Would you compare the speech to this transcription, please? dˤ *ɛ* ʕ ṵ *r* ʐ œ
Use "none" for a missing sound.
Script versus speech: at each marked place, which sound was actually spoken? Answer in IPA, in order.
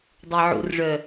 ɛ, r

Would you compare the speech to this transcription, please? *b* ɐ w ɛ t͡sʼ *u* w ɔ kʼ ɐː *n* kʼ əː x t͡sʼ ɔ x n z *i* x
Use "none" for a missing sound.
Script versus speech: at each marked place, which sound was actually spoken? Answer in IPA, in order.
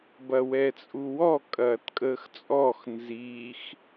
b, u, t, iː

